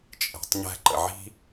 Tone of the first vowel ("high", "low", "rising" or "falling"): low